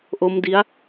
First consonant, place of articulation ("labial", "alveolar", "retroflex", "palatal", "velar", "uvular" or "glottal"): glottal